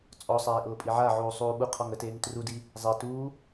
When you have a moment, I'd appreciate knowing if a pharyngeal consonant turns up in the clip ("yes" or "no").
yes